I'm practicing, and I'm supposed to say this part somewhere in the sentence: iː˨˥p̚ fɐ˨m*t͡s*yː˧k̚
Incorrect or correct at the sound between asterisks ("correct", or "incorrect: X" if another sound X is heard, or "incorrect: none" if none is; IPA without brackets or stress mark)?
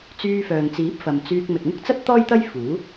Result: correct